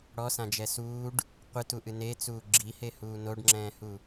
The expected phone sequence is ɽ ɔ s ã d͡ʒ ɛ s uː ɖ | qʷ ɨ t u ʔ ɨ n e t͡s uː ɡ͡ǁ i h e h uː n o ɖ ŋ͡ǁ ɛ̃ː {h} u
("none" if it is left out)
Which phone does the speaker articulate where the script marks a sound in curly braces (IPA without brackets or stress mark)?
h